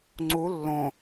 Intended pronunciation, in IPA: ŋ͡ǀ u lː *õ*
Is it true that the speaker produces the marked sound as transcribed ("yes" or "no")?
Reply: yes